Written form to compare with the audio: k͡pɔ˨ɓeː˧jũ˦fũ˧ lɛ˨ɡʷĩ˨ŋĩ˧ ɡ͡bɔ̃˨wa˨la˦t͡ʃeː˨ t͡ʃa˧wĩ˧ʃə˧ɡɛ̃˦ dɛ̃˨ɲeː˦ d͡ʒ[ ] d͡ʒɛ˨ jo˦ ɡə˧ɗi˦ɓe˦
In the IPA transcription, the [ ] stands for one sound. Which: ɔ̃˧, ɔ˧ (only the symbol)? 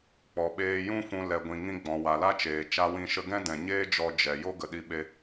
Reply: ɔ˧